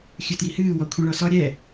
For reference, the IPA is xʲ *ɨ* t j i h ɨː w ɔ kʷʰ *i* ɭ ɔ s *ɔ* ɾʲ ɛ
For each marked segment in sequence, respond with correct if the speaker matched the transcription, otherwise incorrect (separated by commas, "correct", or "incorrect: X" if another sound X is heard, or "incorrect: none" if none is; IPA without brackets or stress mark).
correct, incorrect: ĩ, correct